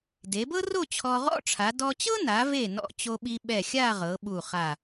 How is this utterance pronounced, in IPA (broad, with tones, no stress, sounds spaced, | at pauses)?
d e˩˧ b ɤ˥ r o˥˧ t͡ɕʰ ɔ˧ ʁ ɔ̰˥ ʈ͡ʂʰ a˩˧ d ɔ˧ t͡ɕ ɤ˥ n a˩˧ v e˧˩ n ɔ̰˧ t͡ɕ o˧ ɓ i˧ ɓ ɛ˧˩ xʲ a˥˧ ʁ ɤ˩˧ ɓ u˧˩ χ a˧˩